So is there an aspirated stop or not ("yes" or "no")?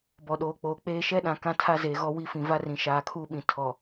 yes